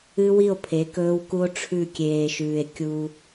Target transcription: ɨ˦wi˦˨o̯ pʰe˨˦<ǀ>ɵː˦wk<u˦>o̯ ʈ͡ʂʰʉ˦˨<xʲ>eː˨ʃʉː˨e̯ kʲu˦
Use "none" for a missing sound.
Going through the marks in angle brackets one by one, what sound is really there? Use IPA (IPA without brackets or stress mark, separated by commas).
k, u˦, kʲ